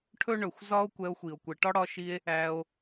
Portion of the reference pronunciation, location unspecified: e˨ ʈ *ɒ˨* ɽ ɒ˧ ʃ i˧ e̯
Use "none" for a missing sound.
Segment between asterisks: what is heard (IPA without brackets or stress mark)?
ɒ˦